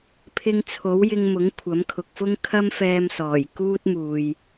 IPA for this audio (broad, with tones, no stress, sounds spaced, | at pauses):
pʰ ɪ˧ ŋ t͡sʰ o˨˥ w j ɪ˧ ŋ m ʊ˨˥ ŋ kʷʰ ɐ˨˥ m kʰ ʊ˨ k̚ f ʊ˥ ŋ kʰ ɐ˥ m f ɛː˧ m s ɔː˨˩ j k uː˥ t̚ m uː˨ j